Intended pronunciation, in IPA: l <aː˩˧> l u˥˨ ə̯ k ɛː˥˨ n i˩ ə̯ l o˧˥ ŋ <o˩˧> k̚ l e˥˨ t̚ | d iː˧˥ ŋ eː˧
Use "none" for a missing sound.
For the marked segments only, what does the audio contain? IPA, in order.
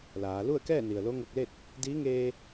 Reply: aː˩˧, o˧

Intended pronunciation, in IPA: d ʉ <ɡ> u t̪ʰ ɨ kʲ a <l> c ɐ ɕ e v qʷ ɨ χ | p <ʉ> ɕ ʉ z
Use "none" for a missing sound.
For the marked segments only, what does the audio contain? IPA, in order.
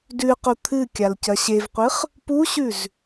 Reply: q, l, u

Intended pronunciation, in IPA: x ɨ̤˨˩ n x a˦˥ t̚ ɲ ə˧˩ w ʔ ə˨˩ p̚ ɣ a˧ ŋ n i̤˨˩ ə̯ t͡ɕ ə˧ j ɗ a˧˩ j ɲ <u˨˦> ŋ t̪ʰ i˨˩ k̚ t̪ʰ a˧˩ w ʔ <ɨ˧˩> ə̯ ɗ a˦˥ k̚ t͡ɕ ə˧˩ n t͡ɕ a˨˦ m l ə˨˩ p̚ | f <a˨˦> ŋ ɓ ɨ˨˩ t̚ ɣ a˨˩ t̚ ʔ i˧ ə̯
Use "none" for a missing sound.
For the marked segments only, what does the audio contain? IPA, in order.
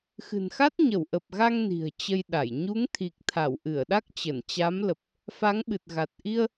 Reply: u˨˦, ɨ˧˩, a˨˦

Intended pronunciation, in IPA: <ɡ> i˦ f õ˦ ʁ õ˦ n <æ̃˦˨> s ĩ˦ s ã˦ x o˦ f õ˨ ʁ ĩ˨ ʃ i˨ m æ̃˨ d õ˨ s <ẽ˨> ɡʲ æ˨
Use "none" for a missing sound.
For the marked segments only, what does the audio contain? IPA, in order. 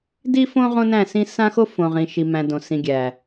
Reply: d, æ̃˦˨, ĩ˨

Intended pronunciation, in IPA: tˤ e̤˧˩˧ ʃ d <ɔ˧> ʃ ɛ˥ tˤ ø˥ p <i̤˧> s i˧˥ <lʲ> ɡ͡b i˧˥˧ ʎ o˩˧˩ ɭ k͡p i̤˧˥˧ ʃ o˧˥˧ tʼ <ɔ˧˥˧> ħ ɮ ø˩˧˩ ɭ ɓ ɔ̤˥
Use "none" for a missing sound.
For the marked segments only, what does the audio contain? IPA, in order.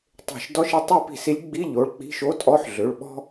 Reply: ɔ˧˥˧, i̤˧, lʲ, ɔ˧˥˧

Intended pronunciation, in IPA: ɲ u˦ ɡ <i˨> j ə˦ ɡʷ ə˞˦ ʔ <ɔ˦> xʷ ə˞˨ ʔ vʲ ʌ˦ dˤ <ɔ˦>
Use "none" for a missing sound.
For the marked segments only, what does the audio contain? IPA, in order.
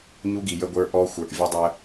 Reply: i˨, ɔ˦, ə˦

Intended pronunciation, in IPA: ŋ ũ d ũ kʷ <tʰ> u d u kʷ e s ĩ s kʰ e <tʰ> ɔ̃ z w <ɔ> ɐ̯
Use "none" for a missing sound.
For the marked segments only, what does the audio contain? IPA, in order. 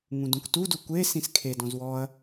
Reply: t, d, ɔ

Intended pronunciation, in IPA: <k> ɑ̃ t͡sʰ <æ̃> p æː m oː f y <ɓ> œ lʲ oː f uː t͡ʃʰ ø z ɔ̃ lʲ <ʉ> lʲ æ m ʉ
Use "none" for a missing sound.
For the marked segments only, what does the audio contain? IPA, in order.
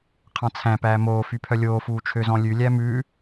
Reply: qʰ, æ̃, pʰ, ʉ

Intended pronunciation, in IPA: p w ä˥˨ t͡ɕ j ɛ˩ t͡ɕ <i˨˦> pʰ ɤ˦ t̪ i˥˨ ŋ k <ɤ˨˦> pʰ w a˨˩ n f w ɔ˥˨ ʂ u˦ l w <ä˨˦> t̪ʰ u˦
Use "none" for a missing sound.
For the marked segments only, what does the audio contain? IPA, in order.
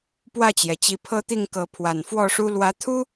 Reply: i˨˦, ɤ˨˦, ä˨˦

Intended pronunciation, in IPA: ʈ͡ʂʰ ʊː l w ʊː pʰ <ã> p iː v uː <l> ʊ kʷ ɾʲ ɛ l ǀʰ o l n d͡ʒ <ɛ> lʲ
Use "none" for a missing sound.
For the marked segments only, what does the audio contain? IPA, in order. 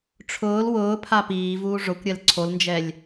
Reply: a, ʐ, ɛ

